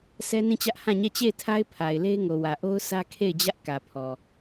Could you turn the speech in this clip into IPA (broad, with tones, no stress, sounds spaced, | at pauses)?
s ɛ˦ n ĩ˦˨ t͡ɕ ä˦ ʔ h ã˦˨ ɲ ɛ˦˨ t͡ɕ e˦˨ ɪ̯ tʰ a˦ ɪ̯ pʰ a˨ ɪ̯ l e˦ ɪ̯ ŋ o˨ w ä˨ ʔ o˦ ʊ̯ sʰ ä˦ kʰ e˦˨ ɪ̯ d͡ʑ ä˦ ʔ k ä˨ pʰ ɔ˨